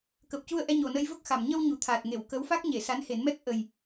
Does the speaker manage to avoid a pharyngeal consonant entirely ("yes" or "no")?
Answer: yes